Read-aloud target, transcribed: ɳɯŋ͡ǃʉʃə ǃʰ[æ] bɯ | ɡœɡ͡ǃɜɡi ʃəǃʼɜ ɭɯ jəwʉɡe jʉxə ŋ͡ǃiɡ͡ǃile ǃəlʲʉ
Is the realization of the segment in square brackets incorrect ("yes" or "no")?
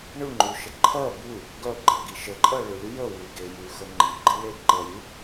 yes